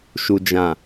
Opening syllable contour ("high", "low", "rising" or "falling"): low